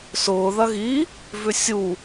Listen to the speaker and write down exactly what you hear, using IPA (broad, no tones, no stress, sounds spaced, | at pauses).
s ʊː ð ɐ ɣ i | v ʏ sʲ u